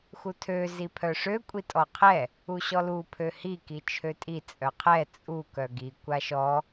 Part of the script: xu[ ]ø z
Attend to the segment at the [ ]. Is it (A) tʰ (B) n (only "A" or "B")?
A